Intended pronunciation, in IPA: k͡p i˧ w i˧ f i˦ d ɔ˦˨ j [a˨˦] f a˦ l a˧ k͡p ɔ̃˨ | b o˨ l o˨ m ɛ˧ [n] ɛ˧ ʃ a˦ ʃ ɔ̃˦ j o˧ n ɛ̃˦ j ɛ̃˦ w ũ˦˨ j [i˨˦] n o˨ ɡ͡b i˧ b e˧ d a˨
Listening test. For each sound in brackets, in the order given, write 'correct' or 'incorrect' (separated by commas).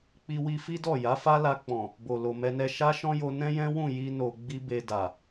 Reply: correct, correct, incorrect